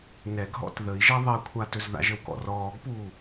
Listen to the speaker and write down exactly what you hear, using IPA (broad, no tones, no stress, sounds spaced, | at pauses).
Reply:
n ɛ ɡ ɦ ɔ̰ t ð ə i̯ ʒ ɛ ðˤ ɛ kʷʰ a t ɵ z ð a̰ ʒ ə w k ɔ̰ r ɔː ɡ p uː